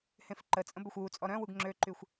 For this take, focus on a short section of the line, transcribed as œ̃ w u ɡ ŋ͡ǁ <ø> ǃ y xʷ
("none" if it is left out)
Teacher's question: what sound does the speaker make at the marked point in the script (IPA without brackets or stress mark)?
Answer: ø